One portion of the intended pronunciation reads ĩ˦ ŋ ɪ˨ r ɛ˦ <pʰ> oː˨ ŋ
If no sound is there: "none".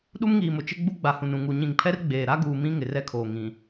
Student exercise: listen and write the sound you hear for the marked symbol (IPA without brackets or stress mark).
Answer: kʰ